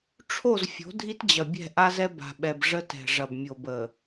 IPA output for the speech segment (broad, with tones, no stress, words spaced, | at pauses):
ʈ͡ʂʰo˦˨z fʲo̤˨˦dʱi˦t d͡ʑɐ˨bʲɛ̤˦˨ʔa˦zɛ˦ ba̤˨ɓɛ˨b ʐə˦tɛ̤˨ ʐɐ˨b mʲo˨bə˨